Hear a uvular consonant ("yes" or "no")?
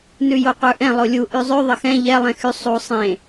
yes